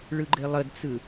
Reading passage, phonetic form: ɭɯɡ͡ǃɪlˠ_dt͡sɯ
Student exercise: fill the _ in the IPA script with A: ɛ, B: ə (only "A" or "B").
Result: B